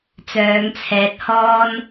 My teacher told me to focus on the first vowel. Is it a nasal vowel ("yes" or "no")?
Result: no